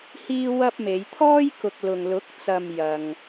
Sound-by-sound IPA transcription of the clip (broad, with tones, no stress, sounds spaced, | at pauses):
h iː˥ w ɐ˥ p̚ m e˨˧ j t̪ʰ ɔː˥ j k ʊ˨ k̚ l ʊ˨ ŋ l ʊ˨˥ k̚ t͡s ɐ˨ m j ɐ˨ ŋ